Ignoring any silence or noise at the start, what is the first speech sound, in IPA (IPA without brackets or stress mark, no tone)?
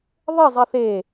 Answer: ðˤ